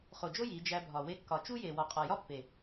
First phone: χ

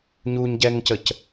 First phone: ɲ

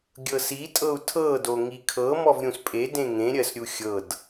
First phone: ɡʲ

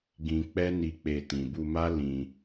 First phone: ɡ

